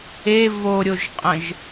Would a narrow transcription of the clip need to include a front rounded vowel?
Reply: no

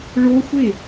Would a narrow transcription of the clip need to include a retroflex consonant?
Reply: yes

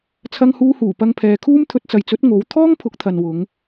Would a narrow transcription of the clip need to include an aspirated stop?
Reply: yes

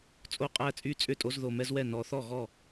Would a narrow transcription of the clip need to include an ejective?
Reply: yes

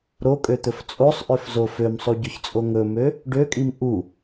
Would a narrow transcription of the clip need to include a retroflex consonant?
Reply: yes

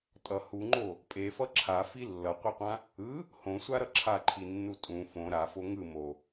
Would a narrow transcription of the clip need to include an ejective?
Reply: yes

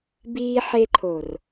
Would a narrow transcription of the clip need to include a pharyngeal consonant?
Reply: yes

